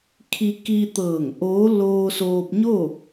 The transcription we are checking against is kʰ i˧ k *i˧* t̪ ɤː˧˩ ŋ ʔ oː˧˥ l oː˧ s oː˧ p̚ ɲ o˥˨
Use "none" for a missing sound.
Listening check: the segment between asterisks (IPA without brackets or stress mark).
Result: i˧